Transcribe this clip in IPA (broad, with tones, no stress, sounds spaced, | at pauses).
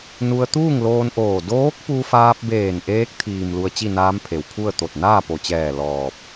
n u˧ ə̯ t̪ uː˥˨ ŋ l oː˧ n ʔ oː˧˩ d oː˧˥ k̚ p u˧ f aː˧ p̚ b eː˧˩ n ʔ eː˧˥ k̚ t̪ʰ iː˩ m l u˧ ə̯ t͡ɕ i˥˨ n aː˧˥ m pʰ e˩ w pʰ u˥˨ ə̯ t̪ o˧˩ t̚ n aː˥˨ p o˩ t͡ɕ ɛː˧˩ l ɔː˧˩ p̚